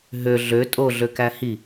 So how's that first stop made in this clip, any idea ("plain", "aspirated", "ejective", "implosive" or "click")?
ejective